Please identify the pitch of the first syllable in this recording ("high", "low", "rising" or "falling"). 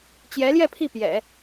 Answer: rising